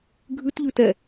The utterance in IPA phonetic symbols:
ɡʱ ʉ t ʎ ʉ t ɛ

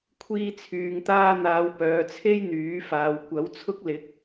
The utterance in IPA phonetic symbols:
kʷʰ iː˧ t͡sʰ yː˨ ŋ t̪ aː˧ n̪ aː˨˧ w p œː˨ t͡sʰ e˥ j n̪ yː˨˥ f aː˨ w kʷ ɐ˨˥ w t͡sʰ ʊ˥ k̚ l ɪ˨˥ k̚

